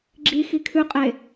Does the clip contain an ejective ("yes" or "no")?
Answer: yes